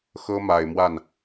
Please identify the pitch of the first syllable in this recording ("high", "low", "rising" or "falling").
high